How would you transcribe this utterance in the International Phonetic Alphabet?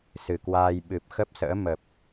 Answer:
sɨ˨˩kwaː˧j ɓɨ˨˩p̚xə˦˥p̚sə̰ː˧˥ mə˨˩p̚

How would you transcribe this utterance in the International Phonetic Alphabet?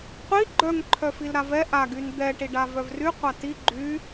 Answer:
qʷi ɡ͡ǃœŋ ǃʰœfilɾavɛ ʔa ɡynd̪ɛ ʈiɖavœvry qʷati ɡ͡ǃy

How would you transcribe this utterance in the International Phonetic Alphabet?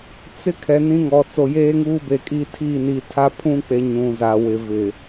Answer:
t͡sɪ˦kʰɛ˨ nĩ˦ŋɔ˨ t͡so˨jeː˦ŋuː˦be˨ kʼi˦tʰi˦˨ ni˨tʰa˦pʰũ˦k͡pe˨ ɲũ˨za˨wɪ˨ vɪ˨

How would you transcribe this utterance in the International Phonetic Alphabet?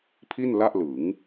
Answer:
pʰi˥˩nla˥˩ʔlɯ˩˦ŋ

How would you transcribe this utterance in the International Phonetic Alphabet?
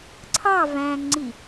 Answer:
ǀʰɑ væ̃ŋŋ͡ǀi

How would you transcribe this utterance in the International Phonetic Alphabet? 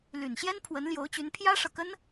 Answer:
ly˨˩nɕjɛ˥n pʰwə˧˥nljo˧˥ʊ̯t͡ɕy˧˥n pʰjä˥ʂɤ˨kə˥n

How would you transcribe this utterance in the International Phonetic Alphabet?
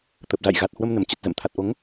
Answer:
t̪ə˨˩p̚ za̰˧˨j ɣa˨˩t̚hwə˧m nə˧˩mt͡ɕə˨˩t̚ zə̰˧˨mt̪ʰa˨˩t̚ʔo˨˦ŋ

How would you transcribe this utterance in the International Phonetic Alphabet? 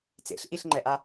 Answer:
t͡sḛɬʔiɬŋ͡ǃɛʔa

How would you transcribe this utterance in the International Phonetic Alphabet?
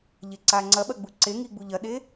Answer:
ʎeǀaŋ͡ǀɐɓɐ ɡ͡buǀeŋi ɡ͡buʎɐɗe

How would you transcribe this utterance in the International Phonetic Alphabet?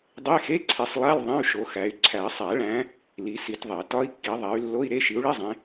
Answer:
dˤe˧˥˧xe˧˥˧ǀʰi˨˦sˤlˠæ˧˥˧l ðˤẽ˧˥˧y̯ʃo˨˦xæ˨˦y̯ ǀʰæ˨˩˦sˤæ˨˩˦ɭæ̃˨˦ | li˨˦si˨˦tðˤe˨˩˦ tɒ˧˥˧i̯kːi˨˦ ðˤæ˨˦y̯lːo˧˥˧i̯ɾe˧˥˧ ʃi˨˦u̯ɭi˧˥˧zˤẽ˨˦

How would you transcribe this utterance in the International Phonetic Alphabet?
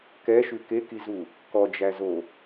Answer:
kɛʃʉ kekizu | kɔd͡ʒæzo

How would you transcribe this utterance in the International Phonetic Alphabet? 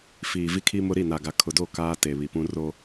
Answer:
fiː˨ vi˦kʰi˦mʊ˦ ɾi˦˨na˨ɡa˨ kʰʊ˨do˦˨ kaː˦te˨βi˨pũ˦ ro˦

